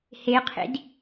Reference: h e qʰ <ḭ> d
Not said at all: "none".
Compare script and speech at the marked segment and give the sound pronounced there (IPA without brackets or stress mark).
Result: ḭ